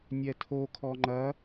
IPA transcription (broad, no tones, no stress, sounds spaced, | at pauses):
nʲ ɛ tʰ o kʰ ɔ ŋ͡ǃ ɐ